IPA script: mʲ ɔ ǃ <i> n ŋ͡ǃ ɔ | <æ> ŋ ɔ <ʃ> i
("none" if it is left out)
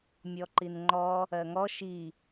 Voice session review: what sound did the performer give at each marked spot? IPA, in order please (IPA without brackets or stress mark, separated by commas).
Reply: i, ɜ, ʃ